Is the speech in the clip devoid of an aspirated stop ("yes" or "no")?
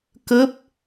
yes